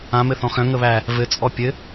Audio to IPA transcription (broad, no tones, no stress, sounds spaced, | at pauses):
ã m ɘ θ ɔ̃ x œ̃ ŋ ə β æ | v ɘ t͡sʼ ɔ pʲ ɘ